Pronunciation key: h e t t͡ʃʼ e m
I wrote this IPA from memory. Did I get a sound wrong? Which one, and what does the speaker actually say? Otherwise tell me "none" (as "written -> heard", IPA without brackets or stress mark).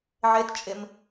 h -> ʕ